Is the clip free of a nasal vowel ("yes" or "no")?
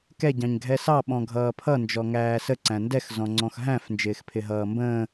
no